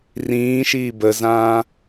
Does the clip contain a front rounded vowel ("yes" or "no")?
no